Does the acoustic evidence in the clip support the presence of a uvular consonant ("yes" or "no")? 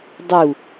no